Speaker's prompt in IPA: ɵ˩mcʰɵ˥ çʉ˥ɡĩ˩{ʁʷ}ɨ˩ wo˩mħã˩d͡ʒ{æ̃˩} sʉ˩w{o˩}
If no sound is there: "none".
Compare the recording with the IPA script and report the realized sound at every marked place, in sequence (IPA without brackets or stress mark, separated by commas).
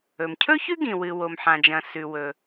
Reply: w, ɐ̃˩, ɵ˩